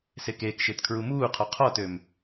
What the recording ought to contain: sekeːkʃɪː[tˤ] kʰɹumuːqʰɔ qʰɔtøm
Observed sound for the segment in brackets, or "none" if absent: t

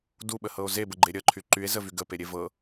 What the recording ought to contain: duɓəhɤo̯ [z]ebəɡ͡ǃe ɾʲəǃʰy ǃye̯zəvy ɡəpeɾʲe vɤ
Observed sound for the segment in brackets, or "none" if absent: z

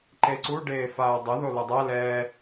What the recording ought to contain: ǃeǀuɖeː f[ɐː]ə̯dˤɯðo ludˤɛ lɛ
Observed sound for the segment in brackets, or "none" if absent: aː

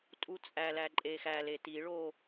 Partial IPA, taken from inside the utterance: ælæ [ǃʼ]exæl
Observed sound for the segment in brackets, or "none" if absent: ǃʼ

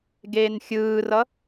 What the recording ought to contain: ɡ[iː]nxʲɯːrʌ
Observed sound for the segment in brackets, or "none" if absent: eː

